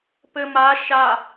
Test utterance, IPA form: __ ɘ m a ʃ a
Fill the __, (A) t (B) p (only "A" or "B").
B